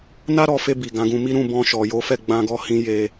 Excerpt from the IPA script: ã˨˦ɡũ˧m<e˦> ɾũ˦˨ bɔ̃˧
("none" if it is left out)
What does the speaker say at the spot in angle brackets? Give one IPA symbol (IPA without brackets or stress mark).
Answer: i˦